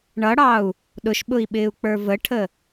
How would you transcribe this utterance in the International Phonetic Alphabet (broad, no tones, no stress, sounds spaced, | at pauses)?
ɳ ʌ ɽ ɑ u̯ | ɗ ʊ ʃ ɓ ʊ i̯ ɓ ɪː u̯ k͡p ə˞ v ə ʈʰ ə